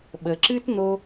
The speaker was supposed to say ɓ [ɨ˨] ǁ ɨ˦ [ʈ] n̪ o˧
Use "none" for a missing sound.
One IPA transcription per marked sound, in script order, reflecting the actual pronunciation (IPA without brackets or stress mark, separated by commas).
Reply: ə˨, t